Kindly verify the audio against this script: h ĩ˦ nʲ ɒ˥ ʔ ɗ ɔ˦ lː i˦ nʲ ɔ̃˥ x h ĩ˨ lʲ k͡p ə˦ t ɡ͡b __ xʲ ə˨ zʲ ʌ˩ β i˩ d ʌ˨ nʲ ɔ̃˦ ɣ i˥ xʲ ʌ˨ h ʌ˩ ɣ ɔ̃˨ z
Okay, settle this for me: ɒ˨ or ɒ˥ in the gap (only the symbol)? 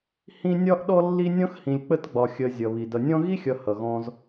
ɒ˨